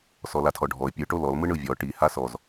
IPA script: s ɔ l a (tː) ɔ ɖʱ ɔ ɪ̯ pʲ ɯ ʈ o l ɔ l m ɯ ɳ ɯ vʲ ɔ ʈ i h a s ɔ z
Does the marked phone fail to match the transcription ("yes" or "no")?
yes